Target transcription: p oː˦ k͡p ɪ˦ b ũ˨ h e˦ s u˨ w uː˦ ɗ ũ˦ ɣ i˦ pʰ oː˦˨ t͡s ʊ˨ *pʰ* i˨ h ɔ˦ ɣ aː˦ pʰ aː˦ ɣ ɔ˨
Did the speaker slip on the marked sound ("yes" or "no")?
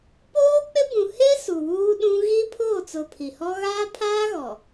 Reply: no